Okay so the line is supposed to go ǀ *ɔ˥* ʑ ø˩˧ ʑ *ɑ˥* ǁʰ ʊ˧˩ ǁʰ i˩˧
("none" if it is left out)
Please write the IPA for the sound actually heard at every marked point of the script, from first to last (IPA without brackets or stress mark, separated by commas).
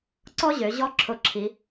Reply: ɔ˥, ɔ˥